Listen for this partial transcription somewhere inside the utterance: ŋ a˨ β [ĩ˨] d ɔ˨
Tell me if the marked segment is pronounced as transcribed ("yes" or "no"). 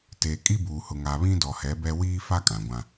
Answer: no